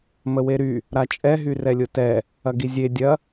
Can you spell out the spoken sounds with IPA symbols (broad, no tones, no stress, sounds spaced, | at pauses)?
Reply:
m ə w e ɾ y | ɾ a t͡ʃʼ ɛ ɦ y r ɛ lʲ ʊ t ɛ | ɐ ɡ i zʲ e dʲ ɐ